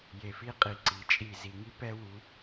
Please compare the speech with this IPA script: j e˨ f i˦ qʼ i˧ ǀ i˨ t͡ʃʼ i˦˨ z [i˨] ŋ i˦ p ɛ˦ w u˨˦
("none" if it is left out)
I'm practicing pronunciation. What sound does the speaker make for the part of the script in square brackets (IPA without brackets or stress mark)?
i˨